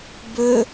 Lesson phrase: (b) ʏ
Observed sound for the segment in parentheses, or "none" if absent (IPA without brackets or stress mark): b